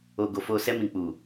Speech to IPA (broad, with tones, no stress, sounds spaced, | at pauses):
o˨ ɡ o˨ f o˨ s ɛ˧ m ĩ˨ k͡p u˨